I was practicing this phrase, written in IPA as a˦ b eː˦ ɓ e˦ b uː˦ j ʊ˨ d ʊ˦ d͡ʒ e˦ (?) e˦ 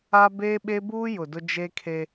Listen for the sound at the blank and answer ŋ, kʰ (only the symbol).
kʰ